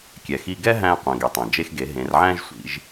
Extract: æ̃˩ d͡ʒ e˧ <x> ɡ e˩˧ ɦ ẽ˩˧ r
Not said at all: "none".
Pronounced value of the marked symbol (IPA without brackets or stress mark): x